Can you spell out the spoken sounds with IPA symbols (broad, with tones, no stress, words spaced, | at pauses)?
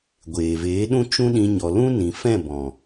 ɡʷeː˨veː˨˦ ɗũ˦ t͡ʃũ˦ɗĩ˧ ɲɔ˨lũ˦nĩ˨fɛ̃˦˨ bɔ̃˨